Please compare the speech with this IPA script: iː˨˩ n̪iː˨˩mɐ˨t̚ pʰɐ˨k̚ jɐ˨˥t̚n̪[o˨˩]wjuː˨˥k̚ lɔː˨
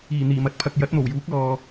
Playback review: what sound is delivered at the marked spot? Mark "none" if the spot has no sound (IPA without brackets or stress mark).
o˨˩